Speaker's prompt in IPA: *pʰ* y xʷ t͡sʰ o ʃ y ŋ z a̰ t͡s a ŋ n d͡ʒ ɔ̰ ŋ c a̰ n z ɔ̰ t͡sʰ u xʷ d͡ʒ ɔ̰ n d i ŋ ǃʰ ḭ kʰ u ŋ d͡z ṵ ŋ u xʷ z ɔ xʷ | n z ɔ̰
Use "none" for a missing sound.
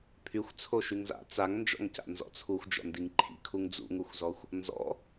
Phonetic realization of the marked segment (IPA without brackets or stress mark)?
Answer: pʰ